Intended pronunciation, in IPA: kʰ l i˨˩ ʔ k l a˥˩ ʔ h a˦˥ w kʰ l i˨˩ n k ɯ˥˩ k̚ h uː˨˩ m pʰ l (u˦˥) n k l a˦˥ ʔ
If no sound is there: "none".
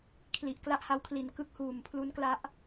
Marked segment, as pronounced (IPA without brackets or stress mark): u˦˥